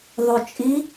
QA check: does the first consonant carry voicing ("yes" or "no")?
yes